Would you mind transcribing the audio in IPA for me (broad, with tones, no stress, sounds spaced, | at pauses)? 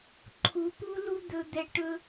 ǃʰ u˨˦ p u˦ l u˦ d̪ ɵ˦ d̪ ɛ˦ ʈ ɵ˦